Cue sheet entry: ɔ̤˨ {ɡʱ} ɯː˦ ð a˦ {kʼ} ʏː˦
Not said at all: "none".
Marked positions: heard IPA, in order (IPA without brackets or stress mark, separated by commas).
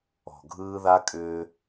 ɡʱ, kʼ